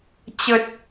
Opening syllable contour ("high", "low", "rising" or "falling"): low